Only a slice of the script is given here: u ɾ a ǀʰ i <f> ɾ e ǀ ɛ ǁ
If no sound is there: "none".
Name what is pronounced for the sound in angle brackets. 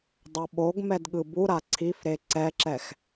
f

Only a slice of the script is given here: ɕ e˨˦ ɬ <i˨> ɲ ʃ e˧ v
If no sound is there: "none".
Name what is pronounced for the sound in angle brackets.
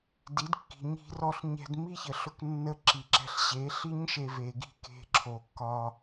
i˦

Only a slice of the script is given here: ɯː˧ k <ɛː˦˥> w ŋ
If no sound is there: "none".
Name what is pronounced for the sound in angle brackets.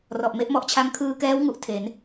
ɛː˦˥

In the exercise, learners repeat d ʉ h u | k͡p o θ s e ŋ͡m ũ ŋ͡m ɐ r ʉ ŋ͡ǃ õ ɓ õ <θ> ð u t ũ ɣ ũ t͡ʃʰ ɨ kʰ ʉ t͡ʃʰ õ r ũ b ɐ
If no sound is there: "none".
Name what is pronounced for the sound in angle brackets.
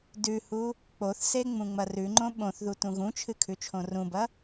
θ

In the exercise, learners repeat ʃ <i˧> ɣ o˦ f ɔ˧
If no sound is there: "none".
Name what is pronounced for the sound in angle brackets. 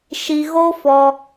i˧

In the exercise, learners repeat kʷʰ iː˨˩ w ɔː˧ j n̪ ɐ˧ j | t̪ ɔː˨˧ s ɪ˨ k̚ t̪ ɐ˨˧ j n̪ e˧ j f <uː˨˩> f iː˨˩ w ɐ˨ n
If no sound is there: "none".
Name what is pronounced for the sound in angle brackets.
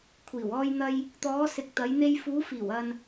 uː˨˧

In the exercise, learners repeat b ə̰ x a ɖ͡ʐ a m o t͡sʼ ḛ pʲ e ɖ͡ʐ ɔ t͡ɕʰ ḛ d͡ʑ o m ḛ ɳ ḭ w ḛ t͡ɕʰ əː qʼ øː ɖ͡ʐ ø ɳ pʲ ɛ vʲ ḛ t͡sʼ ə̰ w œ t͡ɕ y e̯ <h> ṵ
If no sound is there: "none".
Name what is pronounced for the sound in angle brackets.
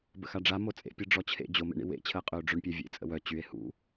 h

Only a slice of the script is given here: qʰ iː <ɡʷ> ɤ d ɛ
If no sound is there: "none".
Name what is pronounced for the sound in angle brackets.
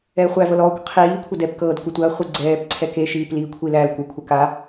kʷʰ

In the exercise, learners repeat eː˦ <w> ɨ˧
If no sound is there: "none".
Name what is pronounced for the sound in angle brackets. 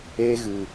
ɣ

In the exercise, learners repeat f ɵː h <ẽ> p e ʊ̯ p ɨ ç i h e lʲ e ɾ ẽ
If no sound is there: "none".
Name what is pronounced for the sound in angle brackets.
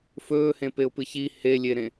ẽ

